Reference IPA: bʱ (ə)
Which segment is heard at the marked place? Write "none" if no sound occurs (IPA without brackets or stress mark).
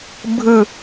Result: ɯ